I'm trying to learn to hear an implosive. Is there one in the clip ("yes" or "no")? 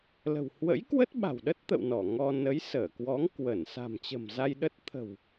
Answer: yes